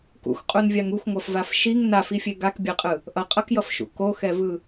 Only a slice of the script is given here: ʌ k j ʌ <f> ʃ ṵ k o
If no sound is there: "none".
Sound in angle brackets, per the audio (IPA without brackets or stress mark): f